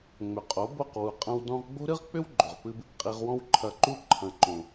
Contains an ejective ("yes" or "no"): yes